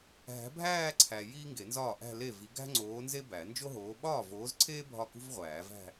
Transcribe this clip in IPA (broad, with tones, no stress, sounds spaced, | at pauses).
ɦ æ̤˨˥ bʱ æː˥˧ ǀʰ æ˨ j iː˥ ŋ ɡ e˨˩˦ n z ɒː˥˩ ʔ æ̤˥˧ l e˥˩ v i˨˥ ɡ æ̤˥ ŋ͡ǀ oː˨˥ n z e˥ b æ˨˩˦ n d͡ʒ o˥ ɦ oː˨˥ ɓ ɒː˥˩ v oː˨˥ z ǀʰ eː˥ bʱ ɒ˥˩ k ṳ˥ v ʁʷ æː˨˩˦ v æ̤˥˧